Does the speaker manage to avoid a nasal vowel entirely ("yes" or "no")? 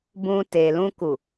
no